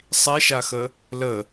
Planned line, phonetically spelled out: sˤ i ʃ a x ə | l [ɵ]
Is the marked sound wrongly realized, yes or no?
yes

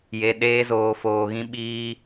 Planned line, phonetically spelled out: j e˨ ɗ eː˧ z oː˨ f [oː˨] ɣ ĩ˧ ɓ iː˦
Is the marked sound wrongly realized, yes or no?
no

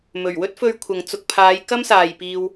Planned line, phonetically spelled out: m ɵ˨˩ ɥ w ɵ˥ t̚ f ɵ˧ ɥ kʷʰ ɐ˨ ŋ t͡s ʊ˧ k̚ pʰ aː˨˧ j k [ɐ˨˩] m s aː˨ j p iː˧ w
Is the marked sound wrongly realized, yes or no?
yes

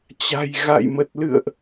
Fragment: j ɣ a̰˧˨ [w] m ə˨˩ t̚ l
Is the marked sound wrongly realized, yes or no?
yes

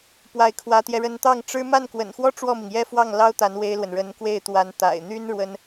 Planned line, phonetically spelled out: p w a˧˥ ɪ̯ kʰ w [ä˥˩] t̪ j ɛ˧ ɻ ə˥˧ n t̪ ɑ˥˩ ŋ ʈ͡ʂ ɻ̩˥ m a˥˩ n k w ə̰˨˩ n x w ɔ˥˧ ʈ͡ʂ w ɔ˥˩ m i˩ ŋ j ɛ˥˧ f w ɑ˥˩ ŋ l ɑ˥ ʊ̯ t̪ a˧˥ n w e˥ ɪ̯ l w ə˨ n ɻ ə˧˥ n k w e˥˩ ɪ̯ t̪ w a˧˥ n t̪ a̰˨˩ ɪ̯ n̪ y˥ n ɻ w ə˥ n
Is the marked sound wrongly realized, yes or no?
yes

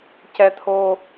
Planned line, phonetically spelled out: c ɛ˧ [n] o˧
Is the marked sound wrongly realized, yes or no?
yes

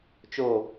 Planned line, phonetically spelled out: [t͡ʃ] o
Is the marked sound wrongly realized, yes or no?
no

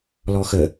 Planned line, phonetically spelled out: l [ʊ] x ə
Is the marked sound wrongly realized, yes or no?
yes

